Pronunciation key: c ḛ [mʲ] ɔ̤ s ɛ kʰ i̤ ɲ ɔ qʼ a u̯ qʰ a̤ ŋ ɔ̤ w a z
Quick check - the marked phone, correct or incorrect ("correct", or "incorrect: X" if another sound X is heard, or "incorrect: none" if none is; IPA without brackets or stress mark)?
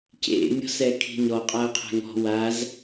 correct